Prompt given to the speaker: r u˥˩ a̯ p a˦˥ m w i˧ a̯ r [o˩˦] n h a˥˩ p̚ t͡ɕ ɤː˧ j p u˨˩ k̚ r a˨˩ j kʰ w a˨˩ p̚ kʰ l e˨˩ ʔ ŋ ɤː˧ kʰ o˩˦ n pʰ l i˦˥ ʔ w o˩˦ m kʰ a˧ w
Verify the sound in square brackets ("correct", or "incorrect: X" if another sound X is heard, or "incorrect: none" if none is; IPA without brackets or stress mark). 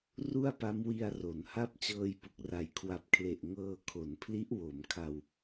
correct